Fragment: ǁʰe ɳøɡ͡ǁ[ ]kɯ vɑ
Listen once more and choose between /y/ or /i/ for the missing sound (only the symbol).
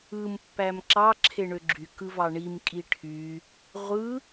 y